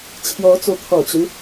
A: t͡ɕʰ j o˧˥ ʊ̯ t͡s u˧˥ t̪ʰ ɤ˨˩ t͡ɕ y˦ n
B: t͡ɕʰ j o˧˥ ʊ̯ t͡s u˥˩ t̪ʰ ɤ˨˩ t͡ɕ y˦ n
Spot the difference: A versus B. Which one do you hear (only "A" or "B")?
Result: A